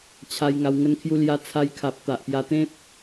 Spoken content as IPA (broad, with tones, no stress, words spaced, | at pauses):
t͡ɕʰa˧j ŋa˧wŋə˦nkʰju˦ lja˧ t͡sʰa˧jkʰa˨p̚ t̪a˨ʔpja˧t̪ẽ˦p̚